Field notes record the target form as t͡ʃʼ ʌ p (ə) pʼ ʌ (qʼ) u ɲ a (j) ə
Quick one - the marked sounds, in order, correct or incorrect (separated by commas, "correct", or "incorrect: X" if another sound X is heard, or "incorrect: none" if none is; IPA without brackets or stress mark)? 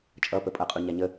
correct, correct, incorrect: ɲ